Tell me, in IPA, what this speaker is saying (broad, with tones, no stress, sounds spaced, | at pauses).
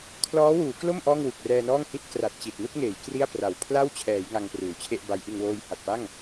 kʰ l ɔː˦˥ w uː˩˦ k l o˥˩ m ʔ ɔː˥˩ ŋ w u˨˩ k̚ r ɛː˧ n ɔː˥˩ ŋ h i˥˩ t̚ k r a˨˩ t̚ t͡ɕ i˨˩ t̚ n u˥˩ k̚ ŋ eː˩˦ j k r i˥˩ a̯ p r a˨˩ w pʰ l a˥˩ w t͡ɕʰ ɛː˩˦ j ŋ a˧ ŋ p r uː˩˦ t͡ɕʰ e˥˩ ʔ b a˦˥ j ʔ ɯ˧ ŋ w oː˧ j h a˨˩ t̚ p a˥˩ ŋ